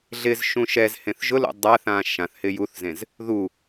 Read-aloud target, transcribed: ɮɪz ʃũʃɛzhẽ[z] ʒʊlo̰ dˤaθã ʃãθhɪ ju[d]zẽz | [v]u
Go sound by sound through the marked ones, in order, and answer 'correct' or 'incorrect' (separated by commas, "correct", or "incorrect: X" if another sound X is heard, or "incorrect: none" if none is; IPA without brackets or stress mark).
incorrect: θ, incorrect: θ, incorrect: ð